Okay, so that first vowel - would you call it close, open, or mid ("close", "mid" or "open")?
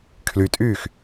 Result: close